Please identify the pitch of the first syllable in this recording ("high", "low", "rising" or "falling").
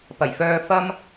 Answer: low